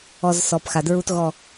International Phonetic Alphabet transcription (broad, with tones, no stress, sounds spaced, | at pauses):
ɔ˨ z s ɔ˨ p x a˨ d ɹ u˧ t ɣ ɔ˨